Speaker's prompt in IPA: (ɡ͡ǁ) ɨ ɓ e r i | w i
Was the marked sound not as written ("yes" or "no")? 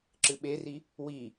yes